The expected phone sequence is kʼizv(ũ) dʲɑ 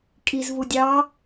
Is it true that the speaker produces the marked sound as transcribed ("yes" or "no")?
no